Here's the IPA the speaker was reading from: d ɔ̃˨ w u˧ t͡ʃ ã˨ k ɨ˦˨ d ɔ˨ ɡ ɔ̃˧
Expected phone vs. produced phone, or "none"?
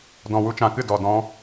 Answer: ɡ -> d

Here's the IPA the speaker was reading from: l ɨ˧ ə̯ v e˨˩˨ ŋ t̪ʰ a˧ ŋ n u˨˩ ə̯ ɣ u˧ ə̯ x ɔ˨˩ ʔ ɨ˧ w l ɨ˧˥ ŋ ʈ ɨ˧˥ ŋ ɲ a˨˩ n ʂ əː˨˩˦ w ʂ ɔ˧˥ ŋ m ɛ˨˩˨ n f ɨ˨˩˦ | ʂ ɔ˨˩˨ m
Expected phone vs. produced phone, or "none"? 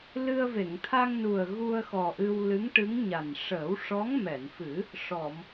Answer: none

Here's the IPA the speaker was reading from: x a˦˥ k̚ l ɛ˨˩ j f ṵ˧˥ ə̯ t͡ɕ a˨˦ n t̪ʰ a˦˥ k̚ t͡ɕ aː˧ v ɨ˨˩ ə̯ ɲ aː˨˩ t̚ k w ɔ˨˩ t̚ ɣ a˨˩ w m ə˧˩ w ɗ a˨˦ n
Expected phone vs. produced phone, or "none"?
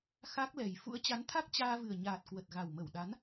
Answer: ɔ˨˩ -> ə˨˩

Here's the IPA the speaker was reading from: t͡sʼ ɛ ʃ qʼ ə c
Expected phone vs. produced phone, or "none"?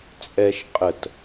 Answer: c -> t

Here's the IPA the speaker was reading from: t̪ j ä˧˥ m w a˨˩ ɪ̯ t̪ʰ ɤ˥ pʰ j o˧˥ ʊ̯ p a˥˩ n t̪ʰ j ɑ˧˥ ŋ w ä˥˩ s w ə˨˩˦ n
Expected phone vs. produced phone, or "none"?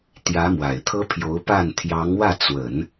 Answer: s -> t͡s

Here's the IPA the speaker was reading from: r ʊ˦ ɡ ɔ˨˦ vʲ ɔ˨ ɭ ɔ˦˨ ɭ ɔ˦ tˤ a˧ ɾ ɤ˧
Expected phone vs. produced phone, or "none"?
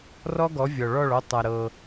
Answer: ʊ˦ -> ɔ˦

